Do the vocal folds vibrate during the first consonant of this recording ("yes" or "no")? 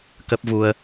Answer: no